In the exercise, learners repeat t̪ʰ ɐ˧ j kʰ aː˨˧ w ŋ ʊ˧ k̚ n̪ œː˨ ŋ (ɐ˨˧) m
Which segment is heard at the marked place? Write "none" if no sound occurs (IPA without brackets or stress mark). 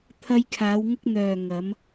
ɐ˨˧